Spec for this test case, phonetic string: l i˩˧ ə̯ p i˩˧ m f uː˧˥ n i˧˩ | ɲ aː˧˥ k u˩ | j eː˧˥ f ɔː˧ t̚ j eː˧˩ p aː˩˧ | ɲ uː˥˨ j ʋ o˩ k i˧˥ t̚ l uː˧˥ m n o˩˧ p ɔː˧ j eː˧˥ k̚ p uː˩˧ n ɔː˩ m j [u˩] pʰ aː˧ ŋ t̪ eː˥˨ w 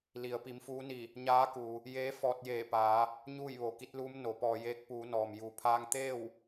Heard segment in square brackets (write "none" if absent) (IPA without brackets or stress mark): u˩